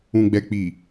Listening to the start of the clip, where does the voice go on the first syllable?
low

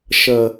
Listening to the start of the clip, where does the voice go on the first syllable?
low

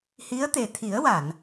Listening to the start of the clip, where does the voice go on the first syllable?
rising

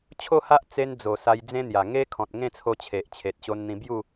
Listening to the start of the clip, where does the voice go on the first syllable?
falling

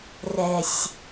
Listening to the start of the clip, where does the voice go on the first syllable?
low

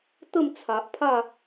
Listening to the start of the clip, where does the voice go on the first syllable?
falling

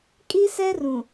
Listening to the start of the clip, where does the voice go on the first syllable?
high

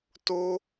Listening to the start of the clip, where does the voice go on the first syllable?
high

